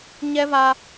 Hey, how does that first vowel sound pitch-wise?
high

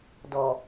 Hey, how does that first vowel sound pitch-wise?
low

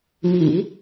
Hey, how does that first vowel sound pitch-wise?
low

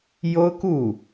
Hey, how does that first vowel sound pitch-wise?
high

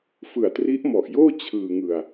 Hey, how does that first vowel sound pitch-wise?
low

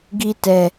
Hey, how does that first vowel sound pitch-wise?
high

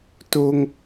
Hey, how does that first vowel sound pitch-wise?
high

